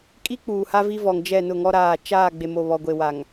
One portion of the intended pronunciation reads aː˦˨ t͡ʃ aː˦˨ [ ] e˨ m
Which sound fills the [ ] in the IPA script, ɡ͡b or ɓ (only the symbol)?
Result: ɡ͡b